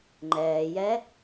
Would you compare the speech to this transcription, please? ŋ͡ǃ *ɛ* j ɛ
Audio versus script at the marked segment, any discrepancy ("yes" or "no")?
yes